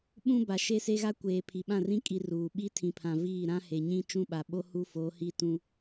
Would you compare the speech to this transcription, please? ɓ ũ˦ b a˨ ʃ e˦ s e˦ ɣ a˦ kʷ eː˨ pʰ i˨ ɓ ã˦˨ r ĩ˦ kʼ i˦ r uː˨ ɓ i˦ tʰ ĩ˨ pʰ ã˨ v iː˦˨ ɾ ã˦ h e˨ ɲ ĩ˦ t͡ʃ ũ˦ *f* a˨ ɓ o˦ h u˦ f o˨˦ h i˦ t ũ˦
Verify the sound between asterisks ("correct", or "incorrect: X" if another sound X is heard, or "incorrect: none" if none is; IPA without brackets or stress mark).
incorrect: ɓ